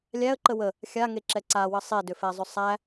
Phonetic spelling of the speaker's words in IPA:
lʲ æ ə̯ ǃ ə w ə | xʲ a ŋ e ǁ ɛ ǀ a w ə sˤ e d ʏ f ɛ zˤ ʏ sˤ æ

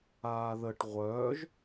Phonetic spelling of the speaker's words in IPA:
aː ð ə ʈ ʁʷ œː ʒ

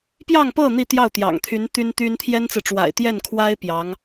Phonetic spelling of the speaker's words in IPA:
p j ɑ˥˧ ŋ p ɤ˥˧ n̪ i˥˧ t̪ j ɑ˥˩ ʊ̯ t̪ j ɑ̰˨˩ ŋ t̪ʰ y˧˥ n t̪ y˥ n t̪ y˥ n t̪ʰ j ɛ˥ n t͡s ɹ̩˨ ʈ͡ʂ w a̰˨˩ ɪ̯ t̪ j ɛ˥˩ n kʰ w a˥ ɪ̯ p j ɑ˧˥ ŋ

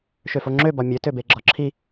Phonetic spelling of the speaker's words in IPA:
ʃ ø f o ŋ͡ǁ ø b ɒ mʲ ø t ø b e ɡ͡ǁ ɒ ǁʰ i

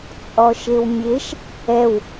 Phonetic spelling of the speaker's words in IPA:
t͡sʼ ɔ ʃ e w mʲ e ʃ | ɛ w

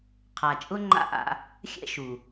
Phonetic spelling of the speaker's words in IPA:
qʰ a˨ t͡ʃʼ ʊ˦ ŋ͡ǃ a̰˦ ʔ a̰˧ | xʲ ɛ̰˦ ʃ u˨

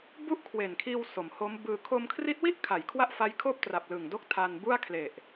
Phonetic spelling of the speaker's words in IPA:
b u˥˩ ʔ kʰ w e˨˩ n kʰ iː˧ w s o˩˦ m h o˦˥ m b ɯː˧ kʰ o˧ m kʰ r i˦˥ t̚ w i˥˩ ʔ kʰ a˨˩ j kʰ w a˥˩ ʔ f a˦˥ j kʰ oː˥˩ p̚ t r a˨˩ p̚ l ɯ˨˩ ŋ d o˥˩ k̚ tʰ aː˧ n b u˥˩ a̯ kʰ l e˨˩ ʔ

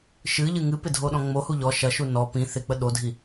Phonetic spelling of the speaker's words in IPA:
ʃ ɨ ʎ ɨ ŋ ɨ p ɪ dʱ o ɗ ɔ̃ ŋ͡m o h u ʎ ɔ ʃ ɐ ʃ u n ɔ p ĩ θ ɪ k͡p ə ɗ o dʱ i

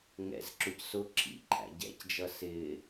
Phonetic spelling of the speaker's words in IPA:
ŋ ɛ̰ z ǁ ʊ c s ʊ ǁʰ ḭ ǃʰ æ̰ ɟ ɛ̰ c d͡ʒ ʌ s ɪː

